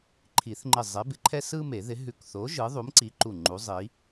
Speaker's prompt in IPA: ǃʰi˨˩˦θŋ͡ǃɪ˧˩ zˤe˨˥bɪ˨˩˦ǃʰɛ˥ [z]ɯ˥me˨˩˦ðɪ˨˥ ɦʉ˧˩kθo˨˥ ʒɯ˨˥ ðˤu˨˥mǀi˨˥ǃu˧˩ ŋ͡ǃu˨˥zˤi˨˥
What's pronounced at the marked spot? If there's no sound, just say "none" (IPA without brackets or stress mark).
s